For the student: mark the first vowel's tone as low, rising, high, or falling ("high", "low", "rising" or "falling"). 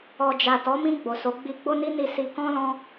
low